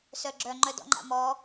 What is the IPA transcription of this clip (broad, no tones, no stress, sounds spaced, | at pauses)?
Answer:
s œ ɡ͡ǁ œ ŋ͡ǃ œ d ɔ̰ ŋ͡ǃ a̰ m ɔ